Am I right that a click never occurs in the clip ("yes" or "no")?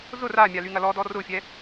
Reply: yes